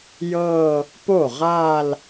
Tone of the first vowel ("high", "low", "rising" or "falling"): falling